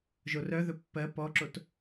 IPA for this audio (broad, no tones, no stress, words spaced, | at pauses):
ʒorœðɵ pːɜ pɔǁot